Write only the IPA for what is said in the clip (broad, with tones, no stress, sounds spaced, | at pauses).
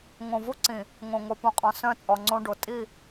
ŋ õ˨ v u˦ ǀ ĩ˨ | ŋ õ˨ ŋ o˨ p ũ˨ qʼ ɔ̃˨ s œ̃˦ t͡sʼ ɔ˨ ŋ͡ǀ õ˦ ɖ o˨ tʼ i˦˨